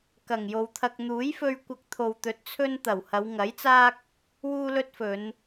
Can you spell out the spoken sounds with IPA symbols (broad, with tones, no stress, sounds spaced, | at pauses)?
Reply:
k ɐ˨˩ ŋ j o˨ w t̪ʰ ɐ˧ k̚ n̪ uː˨˥ j f ɵ˧ ɥ kʷ ɐ˧ k̚ t̪ʰ o˨ w t̪ ɵ˨˥ t̚ t͡sʰ ɵ˥ n t̪ ɐ˨˩ w h ɐ˨˧ w ŋ ɐ˨˥ j t͡s aː˥ k̚ | w uː˥ l ɵ˥ t̚ f ɵ˨˧ n